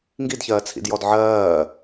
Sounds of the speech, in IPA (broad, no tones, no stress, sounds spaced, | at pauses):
ŋ ɡ i d ç ɜː t͡sʰ ḭ d j ɔ d ʕ ɜː